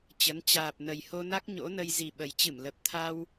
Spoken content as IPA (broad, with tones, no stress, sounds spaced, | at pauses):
t͡ɕ ə˨˦ n t͡ɕ aː˨˩ p̚ n ə˨˩ j h o˧ n a˦˥ k̚ ɲ o̰˧˥ n ə˧ j z i˨˩ ɓ ə˨˩ j t͡ɕ ɨ˧˩ m l ə˨˩ p̚ t̪ʰ a˧ w